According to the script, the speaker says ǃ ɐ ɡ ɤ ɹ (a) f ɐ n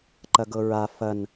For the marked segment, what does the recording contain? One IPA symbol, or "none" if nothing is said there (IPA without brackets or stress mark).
a